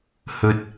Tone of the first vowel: low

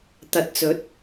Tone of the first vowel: rising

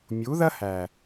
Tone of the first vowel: rising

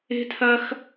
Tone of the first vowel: high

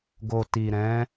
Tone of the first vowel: low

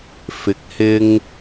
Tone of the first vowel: rising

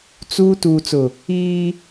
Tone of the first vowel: high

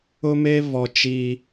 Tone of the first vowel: high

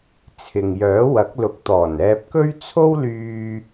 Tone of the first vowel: low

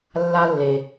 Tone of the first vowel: high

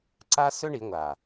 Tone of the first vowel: high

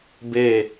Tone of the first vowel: falling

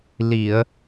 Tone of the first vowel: low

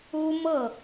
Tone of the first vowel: high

